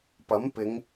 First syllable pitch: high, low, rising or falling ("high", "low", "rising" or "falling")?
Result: rising